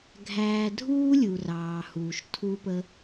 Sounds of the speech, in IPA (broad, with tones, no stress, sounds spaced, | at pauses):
ɡʱ æː˧ dʱ uː˦ lʲ u˨ r ɑː˨ h uː˨ ʃ tʰ u˦ p ə˦